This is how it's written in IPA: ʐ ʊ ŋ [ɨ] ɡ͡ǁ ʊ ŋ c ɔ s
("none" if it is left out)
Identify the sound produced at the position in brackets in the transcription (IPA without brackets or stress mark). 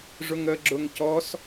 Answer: ə